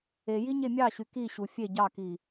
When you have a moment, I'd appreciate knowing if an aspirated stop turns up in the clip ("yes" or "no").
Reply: no